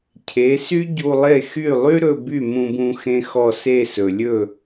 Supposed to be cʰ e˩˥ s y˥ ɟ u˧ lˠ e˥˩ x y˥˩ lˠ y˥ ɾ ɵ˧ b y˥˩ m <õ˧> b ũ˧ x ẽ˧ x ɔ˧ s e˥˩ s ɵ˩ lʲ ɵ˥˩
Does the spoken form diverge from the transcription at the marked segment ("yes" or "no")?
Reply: yes